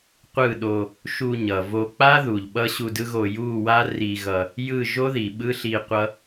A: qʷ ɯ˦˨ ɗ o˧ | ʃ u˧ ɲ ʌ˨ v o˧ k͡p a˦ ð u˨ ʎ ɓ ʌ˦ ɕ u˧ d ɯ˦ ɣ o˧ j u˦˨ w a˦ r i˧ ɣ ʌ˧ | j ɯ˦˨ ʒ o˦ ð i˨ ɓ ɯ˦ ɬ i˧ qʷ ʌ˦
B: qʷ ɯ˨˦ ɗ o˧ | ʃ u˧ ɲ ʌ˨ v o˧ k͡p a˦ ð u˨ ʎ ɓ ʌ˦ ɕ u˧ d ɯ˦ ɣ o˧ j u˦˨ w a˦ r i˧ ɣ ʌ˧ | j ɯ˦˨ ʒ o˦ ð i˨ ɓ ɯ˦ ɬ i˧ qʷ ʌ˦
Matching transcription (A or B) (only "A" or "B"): A